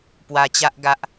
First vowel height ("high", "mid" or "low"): low